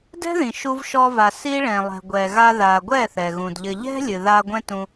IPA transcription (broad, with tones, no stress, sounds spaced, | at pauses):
d ɛ̤˦ ð ĩ˨ ʃ u˧ v ʃ ɔ˧ v a˨ s i˦ ɭ ɛ̃˨ lˠ ɛ̤˨ ɡʷ ɛ˨ ɣ a˧ ð a˨ ɡʷ ɛ˦˨ θ ɛ˨ ɣ ũ˨ d ʎ ɘ˧ ʎ ɛ̤˦ lʲ ɨ˨ ð a˧ ɡʷ ɛ̃˦ t ũ˧